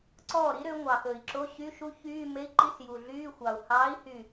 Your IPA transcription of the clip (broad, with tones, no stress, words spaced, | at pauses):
ǀɔː˥˩ɾi˦˥ɾø˨˦ ŋʷɑ˨˩xɵ˨˩i̯ǁo˧˥˧ ɕy˧˥˧ʃu˦˥ çyː˧˥˧ me˧˥˧i̯ǃi˧˥˧s ju˨˩ɮyː˧˥˧ xʷɑ˨˩u̯ hɑː˨˦i̯hy˨˩